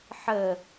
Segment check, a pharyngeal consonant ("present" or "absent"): present